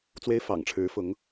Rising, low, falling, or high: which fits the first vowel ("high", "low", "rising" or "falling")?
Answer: high